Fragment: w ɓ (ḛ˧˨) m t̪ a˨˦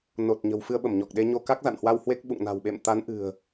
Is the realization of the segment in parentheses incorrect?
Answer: no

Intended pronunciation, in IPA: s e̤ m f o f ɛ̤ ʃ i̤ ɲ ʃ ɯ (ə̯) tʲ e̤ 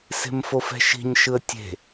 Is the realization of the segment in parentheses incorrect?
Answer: no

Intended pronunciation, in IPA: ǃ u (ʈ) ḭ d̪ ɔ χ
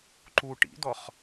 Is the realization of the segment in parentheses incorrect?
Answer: no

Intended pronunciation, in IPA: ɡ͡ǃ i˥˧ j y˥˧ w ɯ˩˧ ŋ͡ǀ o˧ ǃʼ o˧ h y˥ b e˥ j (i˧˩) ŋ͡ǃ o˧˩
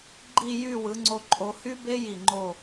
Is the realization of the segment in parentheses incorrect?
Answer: no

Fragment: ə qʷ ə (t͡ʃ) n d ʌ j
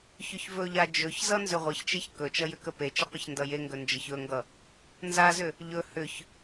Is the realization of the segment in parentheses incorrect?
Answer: yes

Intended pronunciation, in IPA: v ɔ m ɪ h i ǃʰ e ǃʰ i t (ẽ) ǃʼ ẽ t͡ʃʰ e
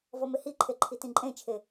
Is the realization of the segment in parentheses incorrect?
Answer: yes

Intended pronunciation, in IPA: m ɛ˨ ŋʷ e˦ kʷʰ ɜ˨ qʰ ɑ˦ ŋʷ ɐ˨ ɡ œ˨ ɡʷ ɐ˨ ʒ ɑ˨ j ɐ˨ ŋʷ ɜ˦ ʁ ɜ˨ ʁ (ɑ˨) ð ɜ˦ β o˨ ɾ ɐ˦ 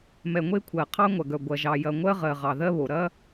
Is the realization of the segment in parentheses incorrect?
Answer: no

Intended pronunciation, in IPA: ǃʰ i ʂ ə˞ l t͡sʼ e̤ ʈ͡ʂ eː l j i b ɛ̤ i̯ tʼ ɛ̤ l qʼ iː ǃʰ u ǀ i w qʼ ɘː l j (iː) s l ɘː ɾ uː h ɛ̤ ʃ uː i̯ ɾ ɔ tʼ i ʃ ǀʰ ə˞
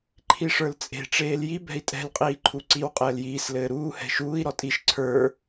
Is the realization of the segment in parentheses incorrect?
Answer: no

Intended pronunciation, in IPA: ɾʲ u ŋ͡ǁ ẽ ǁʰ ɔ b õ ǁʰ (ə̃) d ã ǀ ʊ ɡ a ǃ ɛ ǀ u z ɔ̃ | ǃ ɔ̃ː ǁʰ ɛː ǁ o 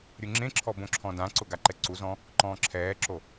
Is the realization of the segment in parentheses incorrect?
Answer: yes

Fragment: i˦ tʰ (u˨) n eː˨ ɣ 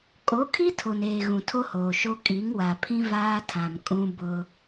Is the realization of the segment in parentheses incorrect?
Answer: yes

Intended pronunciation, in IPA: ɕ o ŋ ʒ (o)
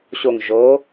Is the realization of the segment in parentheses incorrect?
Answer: no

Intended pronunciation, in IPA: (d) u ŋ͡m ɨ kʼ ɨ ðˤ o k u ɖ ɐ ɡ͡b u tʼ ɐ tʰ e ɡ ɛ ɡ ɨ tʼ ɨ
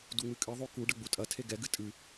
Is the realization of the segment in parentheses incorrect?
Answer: no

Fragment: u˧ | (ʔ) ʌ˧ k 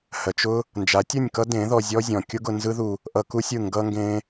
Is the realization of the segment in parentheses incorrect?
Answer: no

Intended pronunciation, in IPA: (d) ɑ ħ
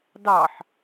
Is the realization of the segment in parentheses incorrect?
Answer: no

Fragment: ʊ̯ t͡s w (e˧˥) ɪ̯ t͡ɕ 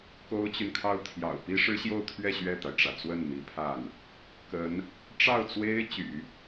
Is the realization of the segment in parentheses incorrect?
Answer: yes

